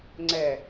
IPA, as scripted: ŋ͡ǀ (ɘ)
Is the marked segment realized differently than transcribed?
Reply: yes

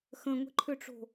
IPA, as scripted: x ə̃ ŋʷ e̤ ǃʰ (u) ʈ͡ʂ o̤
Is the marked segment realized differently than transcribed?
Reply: yes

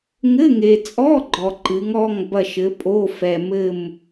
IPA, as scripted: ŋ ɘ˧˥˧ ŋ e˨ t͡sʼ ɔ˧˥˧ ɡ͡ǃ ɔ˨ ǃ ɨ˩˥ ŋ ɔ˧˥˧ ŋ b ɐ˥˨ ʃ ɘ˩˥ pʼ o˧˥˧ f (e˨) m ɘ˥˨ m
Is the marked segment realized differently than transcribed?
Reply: yes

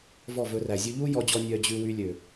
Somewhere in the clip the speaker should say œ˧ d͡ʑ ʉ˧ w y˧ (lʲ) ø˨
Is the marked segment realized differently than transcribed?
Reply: no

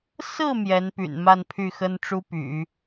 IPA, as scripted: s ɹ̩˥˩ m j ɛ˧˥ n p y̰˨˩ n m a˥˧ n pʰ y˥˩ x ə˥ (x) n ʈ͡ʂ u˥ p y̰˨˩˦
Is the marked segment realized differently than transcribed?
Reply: yes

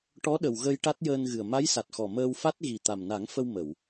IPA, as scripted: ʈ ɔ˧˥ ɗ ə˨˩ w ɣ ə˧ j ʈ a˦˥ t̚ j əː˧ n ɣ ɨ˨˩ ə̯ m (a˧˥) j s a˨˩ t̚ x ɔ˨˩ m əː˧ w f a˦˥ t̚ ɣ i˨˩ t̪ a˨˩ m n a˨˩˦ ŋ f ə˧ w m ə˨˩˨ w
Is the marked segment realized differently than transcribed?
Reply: no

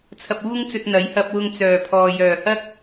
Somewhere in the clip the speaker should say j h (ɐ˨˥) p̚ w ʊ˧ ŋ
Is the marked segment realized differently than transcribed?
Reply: yes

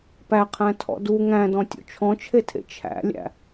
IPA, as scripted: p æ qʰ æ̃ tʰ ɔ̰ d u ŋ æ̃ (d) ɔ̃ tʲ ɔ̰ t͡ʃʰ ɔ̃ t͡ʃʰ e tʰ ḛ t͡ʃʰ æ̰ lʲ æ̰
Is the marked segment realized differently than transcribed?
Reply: no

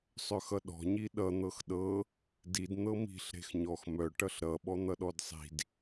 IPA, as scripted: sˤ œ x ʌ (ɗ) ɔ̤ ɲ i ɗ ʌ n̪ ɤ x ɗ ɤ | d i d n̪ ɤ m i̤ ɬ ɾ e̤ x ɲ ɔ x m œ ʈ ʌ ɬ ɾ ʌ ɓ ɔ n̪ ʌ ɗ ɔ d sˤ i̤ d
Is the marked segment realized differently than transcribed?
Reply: no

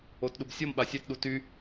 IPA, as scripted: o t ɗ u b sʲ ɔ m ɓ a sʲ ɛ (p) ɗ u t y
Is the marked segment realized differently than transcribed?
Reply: yes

